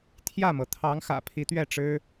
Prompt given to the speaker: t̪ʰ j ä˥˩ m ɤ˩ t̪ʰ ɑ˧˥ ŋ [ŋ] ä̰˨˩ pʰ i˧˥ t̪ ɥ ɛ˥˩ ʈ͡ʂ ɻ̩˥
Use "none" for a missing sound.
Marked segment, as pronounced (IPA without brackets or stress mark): x